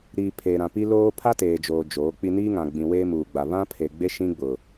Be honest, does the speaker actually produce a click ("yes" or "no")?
no